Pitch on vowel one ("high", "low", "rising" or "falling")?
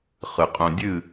low